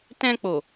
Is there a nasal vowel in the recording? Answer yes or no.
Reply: yes